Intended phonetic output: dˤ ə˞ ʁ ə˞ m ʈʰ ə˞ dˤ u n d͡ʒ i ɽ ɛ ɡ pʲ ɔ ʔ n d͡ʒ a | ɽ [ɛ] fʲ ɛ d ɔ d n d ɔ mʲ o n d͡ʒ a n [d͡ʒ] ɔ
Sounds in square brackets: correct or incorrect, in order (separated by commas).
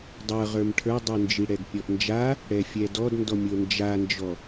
correct, correct